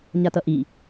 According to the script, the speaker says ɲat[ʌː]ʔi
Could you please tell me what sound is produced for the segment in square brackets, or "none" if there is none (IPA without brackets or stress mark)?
ʌ